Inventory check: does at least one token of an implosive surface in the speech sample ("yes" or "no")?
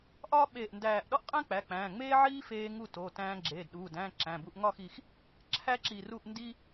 yes